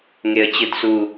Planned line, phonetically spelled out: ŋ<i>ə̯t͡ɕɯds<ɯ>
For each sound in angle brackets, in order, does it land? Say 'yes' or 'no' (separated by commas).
no, no